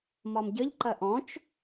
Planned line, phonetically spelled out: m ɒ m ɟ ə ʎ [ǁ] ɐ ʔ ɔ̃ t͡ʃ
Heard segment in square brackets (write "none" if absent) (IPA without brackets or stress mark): ǃ